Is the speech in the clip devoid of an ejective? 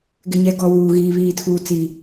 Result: yes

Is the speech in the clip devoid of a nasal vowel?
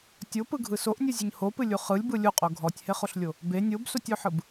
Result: yes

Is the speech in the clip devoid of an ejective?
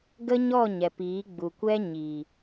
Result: yes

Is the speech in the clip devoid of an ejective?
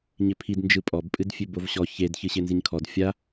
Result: no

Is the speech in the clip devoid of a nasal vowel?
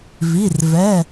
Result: yes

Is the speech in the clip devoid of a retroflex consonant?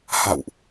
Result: yes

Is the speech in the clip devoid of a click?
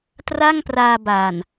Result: yes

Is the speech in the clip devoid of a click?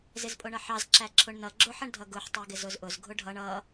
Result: no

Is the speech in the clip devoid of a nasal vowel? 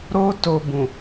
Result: no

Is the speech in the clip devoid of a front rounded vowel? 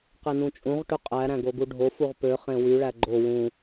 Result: no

